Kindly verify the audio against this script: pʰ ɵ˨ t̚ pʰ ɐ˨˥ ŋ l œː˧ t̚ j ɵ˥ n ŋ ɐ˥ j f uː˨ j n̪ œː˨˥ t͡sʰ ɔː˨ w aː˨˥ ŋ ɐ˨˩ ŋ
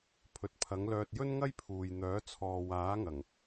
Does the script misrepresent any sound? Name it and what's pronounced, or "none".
f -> pʰ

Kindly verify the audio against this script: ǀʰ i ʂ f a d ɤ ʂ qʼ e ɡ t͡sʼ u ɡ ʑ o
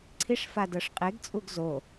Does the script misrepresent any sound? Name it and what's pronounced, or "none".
ʑ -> z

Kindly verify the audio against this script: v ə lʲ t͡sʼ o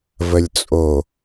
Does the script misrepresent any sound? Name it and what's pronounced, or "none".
none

